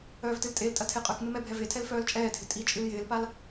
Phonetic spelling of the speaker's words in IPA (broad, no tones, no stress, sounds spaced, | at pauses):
œː v t ɨ l tʼ e l tʼ ɐ tʰ e qʼ œ k m ɪ m ɛ bʱ ɛ v e tʰ ɛ l f œː l t͡ʃʼ ɛː dʱ ɪ tʼ i t͡ʃʼ ɨ l j ɪː l p a l